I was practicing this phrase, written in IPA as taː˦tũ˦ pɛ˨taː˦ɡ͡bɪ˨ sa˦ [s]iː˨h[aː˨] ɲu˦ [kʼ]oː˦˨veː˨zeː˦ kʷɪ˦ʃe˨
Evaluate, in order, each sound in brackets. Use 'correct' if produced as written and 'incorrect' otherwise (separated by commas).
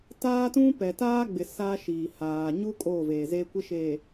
incorrect, correct, correct